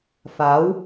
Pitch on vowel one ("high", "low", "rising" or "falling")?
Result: rising